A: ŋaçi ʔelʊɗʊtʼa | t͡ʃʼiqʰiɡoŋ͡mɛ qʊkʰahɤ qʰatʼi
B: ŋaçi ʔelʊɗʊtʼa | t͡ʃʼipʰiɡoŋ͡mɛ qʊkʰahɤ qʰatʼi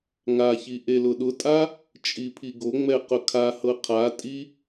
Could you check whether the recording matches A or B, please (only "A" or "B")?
B